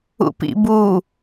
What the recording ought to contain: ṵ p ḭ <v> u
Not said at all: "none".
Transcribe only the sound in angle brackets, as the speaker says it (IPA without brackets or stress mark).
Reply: b